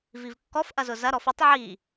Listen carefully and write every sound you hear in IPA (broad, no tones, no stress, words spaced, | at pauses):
vivkːɔf ʔɐzʊzɐ ɾɔfutˤ ʕi